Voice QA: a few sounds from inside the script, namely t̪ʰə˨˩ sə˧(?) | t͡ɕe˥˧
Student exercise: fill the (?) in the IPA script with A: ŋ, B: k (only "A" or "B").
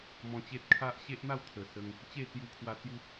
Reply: A